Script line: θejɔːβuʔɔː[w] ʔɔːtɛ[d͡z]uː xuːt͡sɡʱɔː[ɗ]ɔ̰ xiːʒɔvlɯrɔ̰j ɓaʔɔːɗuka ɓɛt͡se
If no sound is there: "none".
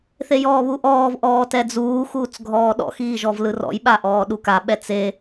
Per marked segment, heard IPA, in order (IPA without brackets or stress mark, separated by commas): v, d͡z, ɗ